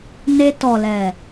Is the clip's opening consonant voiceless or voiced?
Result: voiced